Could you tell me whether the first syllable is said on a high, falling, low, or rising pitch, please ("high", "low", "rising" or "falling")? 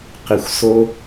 low